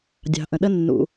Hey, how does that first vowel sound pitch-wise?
low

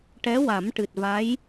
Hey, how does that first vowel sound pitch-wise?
rising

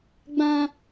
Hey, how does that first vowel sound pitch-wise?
high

